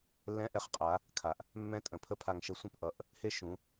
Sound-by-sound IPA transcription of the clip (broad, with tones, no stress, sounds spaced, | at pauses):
lː ɛ̃˧˥ ʔ ɛ˩˧ χ qʼ a˩˧ | kʰ a˩ ʔ | mː ɛ̃˧˥ tʼ ə̃˩ pʰ ə˥ pʰ a˧ ŋ ʃ ə˧˥ sʷ ɛ̃˥ p ʔ ʌ˩˧ ʔ | h e˥ ʃ ũ˩˧